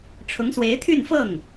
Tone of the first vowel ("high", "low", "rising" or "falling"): rising